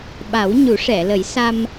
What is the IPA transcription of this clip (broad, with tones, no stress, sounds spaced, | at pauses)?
ɓ a˨˩˦ w ɲ u˨˩˦ ʂ ɛ˨˩˨ l ə˨˩˦ j s a˧ m